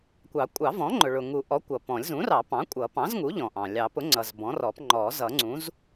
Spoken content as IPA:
kʷɑ˨˩˦kʷʼɑ˨˩˦vɔ̃˩˥ ŋ͡ǃʊ˩ɭʊ˩ŋu˨˩˦ʔɔ˩˥ kʷʌ˩pɔ̃˨˩˦lʲ zũ˩˥rɑ˨˩˦ pɑ̃˩˥kʷʼʌ˨˩˦pɑ̃˩˥zŋu˩˥ ʎɔ̃˩ʔɑ̃˩ lʲɑ˨˩˦pʊ˩˥ŋ͡ǀʌ˩z bɔ̃˩˥rɔ˨˩˦p ŋ͡ǃɔ˨˩˦ zʌ˨˩˦ŋ͡ǀũ˩˥z

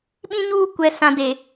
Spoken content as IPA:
ɓĩ˦ɲuː˦ kʷɛ˨sã˨de˨

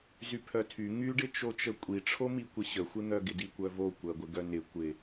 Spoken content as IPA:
zypʰœtʰy ŋyɖɪt͡ʃot͡ʃə kʷʼiʈ͡ʂʰomi kʷɪɕəxʷɪn̪œ ɡɪdikʷœvo kʷɜɡʷɪɡœnɪ kʷɪ

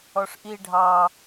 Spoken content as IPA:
ɔʂʔi ɖʱɑ

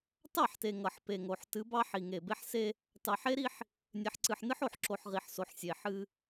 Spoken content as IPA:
tɑ˦˨ħte˨ ŋʌ˨ħpe˨ŋo˨ħ tɨ˨˦bɑ˦ ħi˨ ŋe˨be˦ħ se˦ | tɑ˨ħe˦ɾi˦ħ | nʲe˨ħǀɨ˨ħnɨ˦ħ o˨ħǁo˨ħ ʁi˨ħso˨ħ sʲe˨ħɨ˦

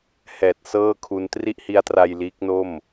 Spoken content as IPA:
hɛː˨˩t̚sɤː˥˩kʰu˧n tri˥˩ʔhi˦˥a̯tra˧j liː˦˥k̚no˥˩m

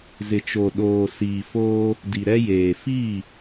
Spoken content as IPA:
zɪ˨t͡ʃo˨ ɗoː˨ siː˨foː˦ | di˨ɾɛ˦jeː˨ fiː˦˨

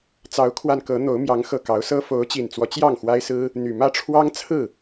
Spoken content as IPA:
t͡sɑ˨˦ʊ̯kʰwa˧nkɤ˨˦n̪o˨˦ʊ̯ mjɑ˨˦ŋ xɤ˨˩kɑ˨˦ʊ̯ sɤ˦ fo˨˦ʊ̯t͡ɕi˨˩nt͡swɔ˦ t͡ɕjɑ˥˨ŋxwa˦ɪ̯sɹ̩˦ | n̪y˨˩mä˥˨ʈ͡ʂʰwɑ˦ŋ t͡sʰɹ̩˥˨

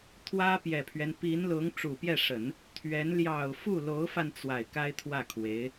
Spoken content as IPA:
t̪ʰwä˥pjɛ˨˩pʰɥɛ˦n pi˧˥nlʊ˧˥ŋ ʈ͡ʂu˨˩pjɛ˥˩ʂə˨˩˦n | t̪ʰɥɛ˧˥n ljɑ˨˩ʊ̯ fu˥˩lo˧˥ʊ̯fa˧n t͡swa˨˩ɪ̯ka˥ɪ̯t̪ʰwä˥˩kʰwe˧˥ɪ̯

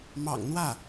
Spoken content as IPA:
mɑ̰˨˩ŋn̪wä˥˩

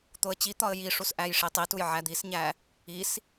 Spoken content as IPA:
t̪oə̯t͡ɕit̪ɒə̯ jiʂus ʔæjʂitˤituj ʕæd̪isɲæ | is

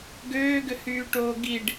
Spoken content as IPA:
ɡøːɡʏhyːʈoː ɡiɖ

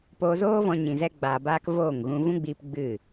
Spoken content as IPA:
poː˧zoː˦vɔ̃˧ ɲĩ˨zɛ˧ɡ͡baː˨baː˧k voː˦˨ŋɣũ˧ vũ˦ɡ͡biː˧p ɡ͡bɨ˦˨

